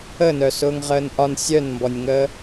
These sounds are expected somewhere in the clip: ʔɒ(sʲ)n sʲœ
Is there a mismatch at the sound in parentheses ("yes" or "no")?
yes